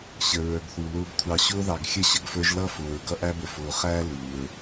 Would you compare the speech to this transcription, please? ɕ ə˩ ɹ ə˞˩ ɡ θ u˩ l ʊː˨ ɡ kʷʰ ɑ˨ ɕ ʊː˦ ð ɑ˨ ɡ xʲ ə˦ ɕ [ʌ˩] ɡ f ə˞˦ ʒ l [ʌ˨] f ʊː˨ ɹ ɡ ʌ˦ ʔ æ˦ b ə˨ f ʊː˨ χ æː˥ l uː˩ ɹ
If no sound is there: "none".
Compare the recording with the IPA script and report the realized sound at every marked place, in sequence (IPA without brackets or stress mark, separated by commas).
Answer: ə˩, ʌ˥